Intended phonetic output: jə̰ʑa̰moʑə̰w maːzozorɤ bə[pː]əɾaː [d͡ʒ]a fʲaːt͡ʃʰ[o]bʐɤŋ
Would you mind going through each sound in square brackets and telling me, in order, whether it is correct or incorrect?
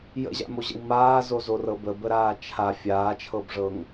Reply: incorrect: b, incorrect: t͡ʃʰ, incorrect: ɤ

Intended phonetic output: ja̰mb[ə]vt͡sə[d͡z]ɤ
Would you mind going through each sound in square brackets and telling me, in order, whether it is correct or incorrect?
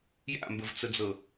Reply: correct, correct

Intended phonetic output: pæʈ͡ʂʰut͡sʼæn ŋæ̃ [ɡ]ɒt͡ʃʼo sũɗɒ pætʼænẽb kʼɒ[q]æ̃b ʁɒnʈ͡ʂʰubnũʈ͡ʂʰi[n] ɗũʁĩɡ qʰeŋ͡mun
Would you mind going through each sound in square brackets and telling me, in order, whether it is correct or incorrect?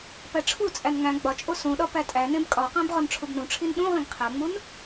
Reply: incorrect: ɡ͡b, correct, correct

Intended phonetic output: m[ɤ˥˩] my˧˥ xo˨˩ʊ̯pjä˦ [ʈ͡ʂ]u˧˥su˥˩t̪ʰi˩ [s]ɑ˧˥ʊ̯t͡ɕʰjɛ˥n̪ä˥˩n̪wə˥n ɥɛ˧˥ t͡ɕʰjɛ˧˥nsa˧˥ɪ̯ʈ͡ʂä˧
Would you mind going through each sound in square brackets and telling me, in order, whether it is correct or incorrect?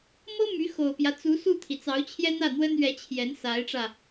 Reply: incorrect: ɤ˥, incorrect: t͡s, incorrect: t͡s

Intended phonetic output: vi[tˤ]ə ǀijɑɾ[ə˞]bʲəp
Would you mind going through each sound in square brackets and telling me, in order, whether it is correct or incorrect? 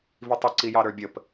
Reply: correct, correct

